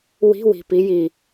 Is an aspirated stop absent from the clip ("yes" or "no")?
yes